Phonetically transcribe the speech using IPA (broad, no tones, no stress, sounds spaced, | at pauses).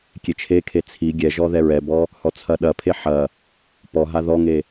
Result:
kʲ e t͡ʃʰ e kʰ e t͡sʰ i ɡʲ ɛ ʒ ɔ ð ɛ ɹ ɛ b ɔ | h ɔ t͡sʰ ɐ ɗ ɐ pʰ e ħ ɐ | p ɔ ɦ a ð ɔ ŋ e